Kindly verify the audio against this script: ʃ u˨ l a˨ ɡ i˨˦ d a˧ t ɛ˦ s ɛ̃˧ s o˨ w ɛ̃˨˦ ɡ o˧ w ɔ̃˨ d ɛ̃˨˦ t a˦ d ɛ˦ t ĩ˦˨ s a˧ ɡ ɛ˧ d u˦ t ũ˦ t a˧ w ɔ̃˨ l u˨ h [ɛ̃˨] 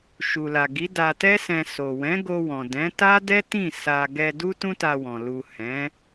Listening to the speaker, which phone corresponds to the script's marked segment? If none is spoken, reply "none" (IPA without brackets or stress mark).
ɛ̃˨˦